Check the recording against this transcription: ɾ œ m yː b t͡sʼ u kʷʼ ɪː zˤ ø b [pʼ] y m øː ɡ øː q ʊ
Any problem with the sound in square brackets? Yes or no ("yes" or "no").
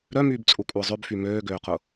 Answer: yes